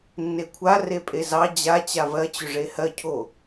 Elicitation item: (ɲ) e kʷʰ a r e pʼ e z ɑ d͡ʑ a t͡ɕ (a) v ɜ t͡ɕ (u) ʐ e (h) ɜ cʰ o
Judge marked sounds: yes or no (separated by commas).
no, yes, no, yes